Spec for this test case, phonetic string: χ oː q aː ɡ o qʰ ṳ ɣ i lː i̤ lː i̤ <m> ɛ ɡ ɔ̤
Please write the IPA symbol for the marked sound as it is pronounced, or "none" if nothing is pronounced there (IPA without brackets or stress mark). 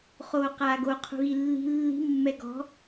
mː